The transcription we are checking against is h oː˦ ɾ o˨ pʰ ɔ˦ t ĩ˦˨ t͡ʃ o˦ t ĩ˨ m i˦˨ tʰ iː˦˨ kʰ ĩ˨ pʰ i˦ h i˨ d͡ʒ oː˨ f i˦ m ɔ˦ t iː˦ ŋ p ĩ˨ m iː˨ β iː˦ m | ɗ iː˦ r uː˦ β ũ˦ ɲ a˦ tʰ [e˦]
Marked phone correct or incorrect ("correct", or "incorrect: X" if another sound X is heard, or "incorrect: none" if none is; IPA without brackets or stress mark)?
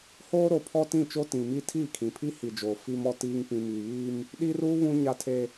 correct